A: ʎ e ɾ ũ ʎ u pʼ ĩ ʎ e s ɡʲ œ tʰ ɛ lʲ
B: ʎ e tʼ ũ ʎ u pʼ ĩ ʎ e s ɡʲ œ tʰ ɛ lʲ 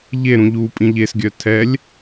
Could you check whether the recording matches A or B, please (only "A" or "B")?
A